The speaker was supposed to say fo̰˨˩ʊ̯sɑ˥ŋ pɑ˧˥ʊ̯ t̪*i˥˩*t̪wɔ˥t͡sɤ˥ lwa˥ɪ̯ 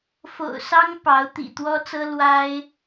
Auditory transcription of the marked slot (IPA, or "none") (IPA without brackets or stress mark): ḭ˨˩